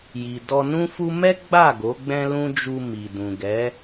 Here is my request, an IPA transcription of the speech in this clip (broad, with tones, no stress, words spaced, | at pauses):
ji˨dɔ˧nũ˦fu˦ mɛ˦ɡ͡ba˦˨ ɡo˨˦ɡ͡bɛ̃˦lũ˦ d͡ʒu˧ mi˨dũ˨ɡɛ˨˦